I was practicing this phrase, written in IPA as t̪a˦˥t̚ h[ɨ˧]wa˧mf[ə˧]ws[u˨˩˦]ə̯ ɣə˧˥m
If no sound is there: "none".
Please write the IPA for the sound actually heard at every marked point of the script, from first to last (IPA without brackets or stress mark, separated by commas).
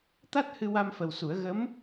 ɨ˧, ə˨˩, u˨˩˦